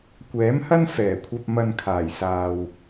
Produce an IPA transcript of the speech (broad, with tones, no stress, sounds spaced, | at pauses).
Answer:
kʷ ɛː˨˥ m h ɐ˥ n f ɛː˨˩ kʷʰ ɐ˧ p̚ m ɐ˧ n kʰ aː˨˩ j s aː˨ w